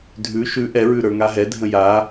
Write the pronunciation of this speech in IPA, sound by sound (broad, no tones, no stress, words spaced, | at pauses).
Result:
dʱʉ ʃʉ ʔɛɹʉ ɾə˞ŋaɦɛdʱə̃ ja